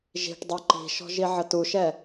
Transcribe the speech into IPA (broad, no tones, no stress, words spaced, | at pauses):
ʒi̤ʈdˤu ǃi̤ʃɔ̤ ʒiʕətuʃɛ